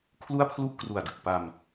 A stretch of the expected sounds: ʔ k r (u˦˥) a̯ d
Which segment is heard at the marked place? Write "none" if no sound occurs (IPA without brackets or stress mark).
u˨˩